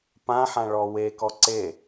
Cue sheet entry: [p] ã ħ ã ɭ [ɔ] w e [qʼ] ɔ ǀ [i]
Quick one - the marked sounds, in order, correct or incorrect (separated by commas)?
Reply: correct, correct, incorrect, incorrect